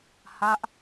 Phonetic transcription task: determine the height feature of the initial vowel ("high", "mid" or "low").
low